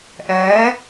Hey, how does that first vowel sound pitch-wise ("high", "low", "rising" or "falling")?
rising